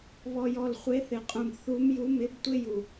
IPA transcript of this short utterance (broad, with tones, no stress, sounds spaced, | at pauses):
β ɔ˨ j ɔ˨ l χʷ e˨˦ θ ɪ˨ qʼ ũ˨ b θ u˨˦ m j u˨˦ m ɪ˨˦ b tʷ ɪ˦ j u˨